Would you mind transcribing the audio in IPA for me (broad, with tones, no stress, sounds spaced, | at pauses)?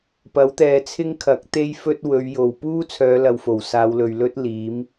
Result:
p ɐ˨˥ w t̪ ɛː˨ t͡sʰ ɪ˥ ŋ kʰ ɐ˨˥ k̚ t̪ e˥ j f ɵ˥ t̚ w ɵ˨˧ ɥ j o˨ w p uː˥ t͡sʰ œː˨˧ l ɐ˨ w f o˨˩ w s aː˨˧ w l ɵ˨ ɥ l ɵ˥ t̚ l iː˨˥ m